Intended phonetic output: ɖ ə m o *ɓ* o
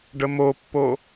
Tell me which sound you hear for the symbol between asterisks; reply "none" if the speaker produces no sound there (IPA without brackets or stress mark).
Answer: pː